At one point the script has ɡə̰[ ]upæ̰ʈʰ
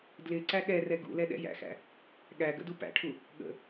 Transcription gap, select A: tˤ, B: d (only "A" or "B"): B